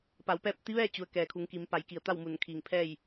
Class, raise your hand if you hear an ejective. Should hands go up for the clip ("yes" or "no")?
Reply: no